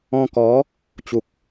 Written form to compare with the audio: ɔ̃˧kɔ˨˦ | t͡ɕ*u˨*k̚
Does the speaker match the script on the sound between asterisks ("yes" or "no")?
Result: yes